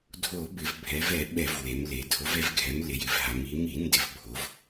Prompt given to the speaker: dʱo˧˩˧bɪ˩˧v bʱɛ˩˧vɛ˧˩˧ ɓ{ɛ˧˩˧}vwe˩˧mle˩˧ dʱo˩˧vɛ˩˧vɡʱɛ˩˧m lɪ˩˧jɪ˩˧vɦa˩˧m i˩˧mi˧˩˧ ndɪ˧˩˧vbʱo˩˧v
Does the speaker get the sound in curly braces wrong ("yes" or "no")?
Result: no